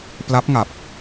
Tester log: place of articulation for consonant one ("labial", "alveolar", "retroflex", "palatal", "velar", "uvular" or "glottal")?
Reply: labial